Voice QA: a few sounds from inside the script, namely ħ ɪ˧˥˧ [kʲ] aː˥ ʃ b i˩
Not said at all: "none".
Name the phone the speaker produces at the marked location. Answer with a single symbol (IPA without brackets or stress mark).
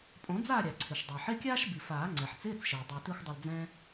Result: kʲ